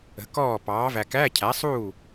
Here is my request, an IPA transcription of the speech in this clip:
ə̤˩˥ k ɔː˥˩ p ɑː˩˥ v æ˨ k æ˧˥˧ cʰ æ˩˥ sˤ uː˥˩

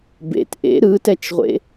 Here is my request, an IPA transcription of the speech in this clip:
b ḛ t ʔ ḛ ɾ ɯ t ɛ t͡ʃ ʁʷ ḛ

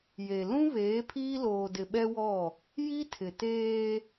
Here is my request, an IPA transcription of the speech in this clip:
j e˨ l ũ˦ β eː˨˦ pʰ iː˦ l oː˨ d ɪ˨ ɓ ɛ˦ w ɔ˦˨ | j i˦ tʰ ɪ˨ t eː˦

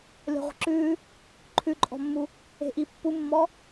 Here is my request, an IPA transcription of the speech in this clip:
lʲ ɔ̤ ʁʷ ə̤ ǁ ʉː | ǃʰ ʉ ǃʼ ɔ̤ mː u | e̤ ʔ i pː u mː ɔ

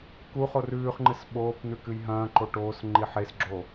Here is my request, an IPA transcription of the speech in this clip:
k u χ o r ʉː χ ŋ͡ǃ ɨ s ɓ oː p n̪ ʉ k ɨ j ɦ ɐ̃ː ǃ o ʈ oː s ŋ͡ǃ i ħ e s ɡ͡ǁ o

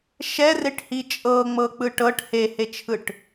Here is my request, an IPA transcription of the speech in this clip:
ʃ ɛ r e ʈ h i t͡ʃʼ ɤ ŋ͡m ɤ k͡p ɯ ʈ ɤ ʈ h e h e t͡ʃʰ ɯ ʈ

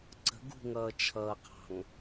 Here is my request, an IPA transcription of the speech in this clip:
ǀ ə̤ ɡ ṳ ŋ ʌː t͡ʃʰ ʌː qʰ ɑ̤ ŋ

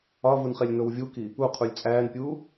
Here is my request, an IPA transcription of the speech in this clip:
ɒ v u n χ e lʲ n o w vʲ u k i | u qʰ u lʲ t͡sʼ æː n pʲ uː

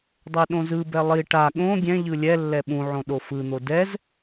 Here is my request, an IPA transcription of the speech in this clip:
dˤ ɛ ɗ õ z ɯ b ɛ lˠ i ʈ a ɠ õ ɡʲ ɛ̃ ʎ ɯ lʲ ɛ lː ɛ ɓ ũ ʕ õ ɗ o f ɯ n̪ o d ɛ z

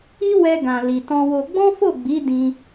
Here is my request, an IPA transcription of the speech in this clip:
i˦ w ɛ˧ ɡ ã˨ l i˨ t ɔ̃˧ w o˧ ɡ͡b ɔ̃˦ f o˦˨ ɡ͡b i˨˦ d ĩ˧

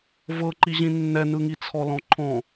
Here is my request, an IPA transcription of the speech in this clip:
v ɤ ǃ i ʑ ĩ nː ɛ n ɯ ŋ i t͡sʰ ɔ l ɔ̃ ǃʰ ɔ̃

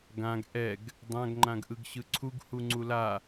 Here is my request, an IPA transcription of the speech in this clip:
ɡ ã ɡ ʔ ɛ ɡ | dˤ ã ɡ ŋ͡ǃ ã ɡ ʔ ɯ ɡ ɕ ɯ ǀʰ u ɡ h u ŋ͡ǀ u l a

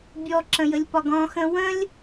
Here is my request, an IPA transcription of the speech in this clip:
bʲ ɔ ǁ ə̃ j ə lʲ p ɒ ɡ ɔ̃ x ə̃ w ə̃ lʲ

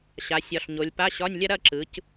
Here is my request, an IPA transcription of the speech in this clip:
ɕ a˩˧ sʲ ɒ˩˧ ɬ ɲ o˩˧ lʲ p a˧˥˧ ɕ ɒ˧˥˧ nʲ lʲ ɐ˥ ɾ ɐ˥˨ ǁ ɯ˩˧ c

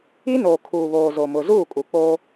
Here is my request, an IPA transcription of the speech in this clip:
i˦ n oː˨ kʰ uː˨ β oː˨ z o˨ m ʊ˨ z uː˦˨ kʼ u˨ k͡p o˦

